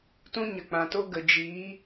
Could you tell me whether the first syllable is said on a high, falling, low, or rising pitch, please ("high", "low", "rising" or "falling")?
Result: high